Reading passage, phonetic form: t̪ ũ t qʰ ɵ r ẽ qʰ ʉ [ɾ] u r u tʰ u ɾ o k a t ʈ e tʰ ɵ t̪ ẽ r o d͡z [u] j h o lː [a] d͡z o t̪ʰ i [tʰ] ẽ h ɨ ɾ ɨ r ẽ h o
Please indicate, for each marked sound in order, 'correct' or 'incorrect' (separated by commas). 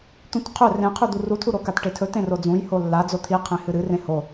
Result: incorrect, incorrect, correct, incorrect